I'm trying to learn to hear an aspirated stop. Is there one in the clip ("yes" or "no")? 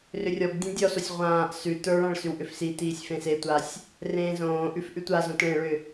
no